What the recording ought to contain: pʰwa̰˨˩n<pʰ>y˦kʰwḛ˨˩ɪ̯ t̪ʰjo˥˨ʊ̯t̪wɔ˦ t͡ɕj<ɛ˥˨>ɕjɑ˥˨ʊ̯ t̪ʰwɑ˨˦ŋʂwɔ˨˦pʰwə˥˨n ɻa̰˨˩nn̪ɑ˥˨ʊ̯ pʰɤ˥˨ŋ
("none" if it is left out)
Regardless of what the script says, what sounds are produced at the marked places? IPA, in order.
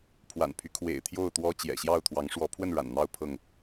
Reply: pʰ, ɛ̰˨˩

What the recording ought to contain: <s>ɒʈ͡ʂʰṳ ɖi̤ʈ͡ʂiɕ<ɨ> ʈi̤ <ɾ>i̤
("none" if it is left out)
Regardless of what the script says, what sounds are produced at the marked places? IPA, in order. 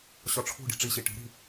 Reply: ɕ, i, ɾ

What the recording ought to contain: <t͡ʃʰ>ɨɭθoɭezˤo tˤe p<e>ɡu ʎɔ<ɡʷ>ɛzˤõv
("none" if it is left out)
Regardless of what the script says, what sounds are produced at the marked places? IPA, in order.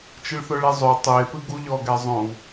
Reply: t͡ʃ, ɨ, ɡ

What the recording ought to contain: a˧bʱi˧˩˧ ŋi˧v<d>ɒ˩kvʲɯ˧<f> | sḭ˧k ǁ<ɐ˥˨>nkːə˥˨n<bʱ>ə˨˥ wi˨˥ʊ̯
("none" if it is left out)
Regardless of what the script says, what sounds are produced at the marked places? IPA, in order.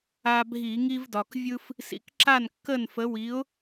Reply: d, f, a˥˨, f

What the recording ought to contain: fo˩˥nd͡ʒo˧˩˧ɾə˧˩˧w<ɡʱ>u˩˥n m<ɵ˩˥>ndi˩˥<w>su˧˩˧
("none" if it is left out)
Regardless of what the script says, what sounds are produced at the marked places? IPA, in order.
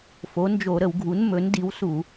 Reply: ɡʱ, ɵ˩˥, w

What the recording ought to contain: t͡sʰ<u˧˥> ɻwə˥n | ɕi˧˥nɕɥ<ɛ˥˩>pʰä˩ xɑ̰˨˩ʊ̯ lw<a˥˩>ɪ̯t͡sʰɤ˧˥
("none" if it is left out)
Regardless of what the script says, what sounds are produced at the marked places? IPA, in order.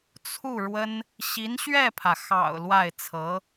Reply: u˥˩, ɛ˥˩, a˥˩

